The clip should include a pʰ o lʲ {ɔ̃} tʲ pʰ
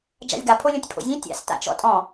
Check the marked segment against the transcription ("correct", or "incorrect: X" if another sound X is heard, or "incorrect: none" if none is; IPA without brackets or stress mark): incorrect: õ